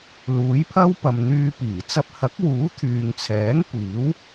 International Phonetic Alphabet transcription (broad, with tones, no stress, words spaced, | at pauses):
luː˨˥jpʰɐ˥wpɐ˨m n̪yː˧piː˨˩ t͡sɐ˧p̚hɐ˨˥k̚wuː˨˥ t̪ʰyː˨ŋt͡sʰɛː˨˥ŋ kʷiː˨˥w